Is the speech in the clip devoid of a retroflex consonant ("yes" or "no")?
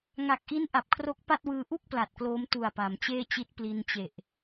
yes